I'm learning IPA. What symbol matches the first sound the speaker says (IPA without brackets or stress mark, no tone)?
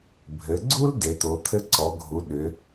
bʱ